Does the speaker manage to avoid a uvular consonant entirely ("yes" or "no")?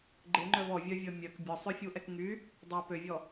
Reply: yes